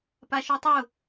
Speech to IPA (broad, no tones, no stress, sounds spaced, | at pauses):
p a ʃ u tˤ ʊ